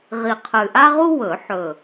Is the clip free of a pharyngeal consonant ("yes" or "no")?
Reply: no